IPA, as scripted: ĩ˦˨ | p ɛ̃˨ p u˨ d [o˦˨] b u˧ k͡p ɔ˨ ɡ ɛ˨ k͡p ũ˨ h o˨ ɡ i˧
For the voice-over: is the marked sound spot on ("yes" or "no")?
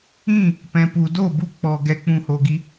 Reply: yes